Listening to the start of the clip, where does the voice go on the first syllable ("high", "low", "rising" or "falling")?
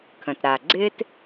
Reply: low